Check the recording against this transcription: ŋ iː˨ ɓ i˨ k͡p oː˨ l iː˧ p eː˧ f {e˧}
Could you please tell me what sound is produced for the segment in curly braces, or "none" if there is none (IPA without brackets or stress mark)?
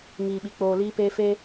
e˦